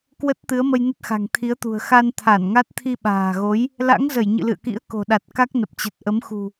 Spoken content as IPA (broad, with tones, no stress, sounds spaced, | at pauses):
k w ə˦˥ t̚ t̪ ɨ˨˦ ə̯ m ə˧ j n ə˦˥ t̚ x a̤˨˩ ŋ t̪ʰ i˨˦ ə̯ t̪ ṳ˨˩ ə̯ x a˧ n t̪ʰ a˧˩ n ŋ a˦˥ t̚ t̪ʰ i˧ ɓ a̤ː˨˩ ɣ o˨˦ j | l a̰˧˥ ŋ z ə˧˩ j ɲ ɨ̰˧˨ l ɨ̰˧˨ ə̯ k ḭ˧˥ ə̯ k o̤˨˩ ɗ a˨˩ t̚ k a˦˥ k̚ n ə˨˩ p̚ t͡ɕ ə˨˩ t̚ ʔ ə˨˦ m x ṳ˨˩